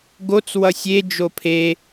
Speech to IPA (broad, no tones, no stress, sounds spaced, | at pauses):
ɡ o t͡s w ʌ sʲ e d͡ʒ o pʰ e